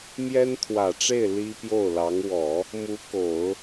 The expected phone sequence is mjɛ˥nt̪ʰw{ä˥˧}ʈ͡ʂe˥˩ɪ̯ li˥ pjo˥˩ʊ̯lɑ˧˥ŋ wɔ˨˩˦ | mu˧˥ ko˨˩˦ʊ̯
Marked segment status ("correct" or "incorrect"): incorrect